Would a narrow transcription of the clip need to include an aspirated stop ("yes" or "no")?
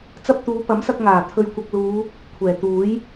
yes